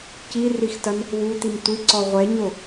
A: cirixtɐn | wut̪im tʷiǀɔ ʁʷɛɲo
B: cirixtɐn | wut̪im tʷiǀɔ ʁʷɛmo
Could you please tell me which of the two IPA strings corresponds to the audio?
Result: A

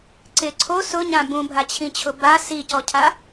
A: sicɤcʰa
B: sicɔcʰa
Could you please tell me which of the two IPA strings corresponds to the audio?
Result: B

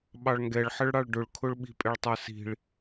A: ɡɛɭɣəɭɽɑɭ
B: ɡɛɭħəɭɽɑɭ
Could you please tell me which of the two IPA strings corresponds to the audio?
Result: B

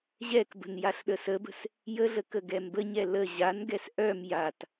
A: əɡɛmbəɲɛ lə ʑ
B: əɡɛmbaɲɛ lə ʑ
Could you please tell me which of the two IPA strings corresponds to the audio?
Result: A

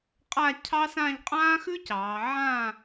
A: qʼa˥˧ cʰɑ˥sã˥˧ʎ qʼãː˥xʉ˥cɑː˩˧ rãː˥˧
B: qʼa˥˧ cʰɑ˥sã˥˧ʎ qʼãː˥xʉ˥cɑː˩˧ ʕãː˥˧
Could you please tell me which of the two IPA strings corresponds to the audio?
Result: B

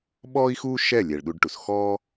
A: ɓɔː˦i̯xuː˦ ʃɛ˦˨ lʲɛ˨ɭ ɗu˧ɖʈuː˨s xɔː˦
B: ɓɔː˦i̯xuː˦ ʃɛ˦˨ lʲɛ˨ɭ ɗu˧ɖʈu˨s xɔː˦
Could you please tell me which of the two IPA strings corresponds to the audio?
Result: B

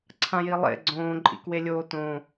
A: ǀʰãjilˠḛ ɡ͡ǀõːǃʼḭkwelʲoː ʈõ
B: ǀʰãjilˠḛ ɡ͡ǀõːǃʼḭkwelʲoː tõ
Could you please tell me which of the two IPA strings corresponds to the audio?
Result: B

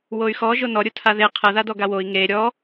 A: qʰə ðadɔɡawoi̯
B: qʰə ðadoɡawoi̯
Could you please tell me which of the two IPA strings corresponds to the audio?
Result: A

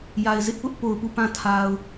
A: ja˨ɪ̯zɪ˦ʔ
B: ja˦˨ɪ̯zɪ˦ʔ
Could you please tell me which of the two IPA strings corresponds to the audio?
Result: A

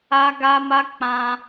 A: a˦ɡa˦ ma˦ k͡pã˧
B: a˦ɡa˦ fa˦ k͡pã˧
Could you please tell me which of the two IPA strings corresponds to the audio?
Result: A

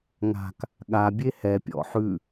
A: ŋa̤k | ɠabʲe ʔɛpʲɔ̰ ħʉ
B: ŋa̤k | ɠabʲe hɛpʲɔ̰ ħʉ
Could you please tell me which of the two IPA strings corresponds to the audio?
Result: B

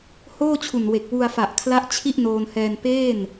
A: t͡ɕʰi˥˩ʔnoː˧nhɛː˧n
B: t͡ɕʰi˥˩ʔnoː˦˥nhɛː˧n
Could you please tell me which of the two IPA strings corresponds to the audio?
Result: A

